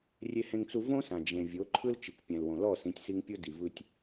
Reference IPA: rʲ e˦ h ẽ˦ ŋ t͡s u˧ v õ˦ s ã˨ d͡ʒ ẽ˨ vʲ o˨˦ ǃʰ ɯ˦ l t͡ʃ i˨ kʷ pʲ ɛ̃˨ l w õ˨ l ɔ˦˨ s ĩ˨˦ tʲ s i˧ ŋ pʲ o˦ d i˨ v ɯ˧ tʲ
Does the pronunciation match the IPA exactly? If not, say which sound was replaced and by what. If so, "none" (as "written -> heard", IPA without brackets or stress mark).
none